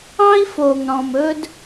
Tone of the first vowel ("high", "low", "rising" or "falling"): high